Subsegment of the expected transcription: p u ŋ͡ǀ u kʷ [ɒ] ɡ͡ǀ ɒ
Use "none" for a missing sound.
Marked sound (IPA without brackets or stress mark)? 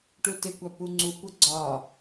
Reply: ʌ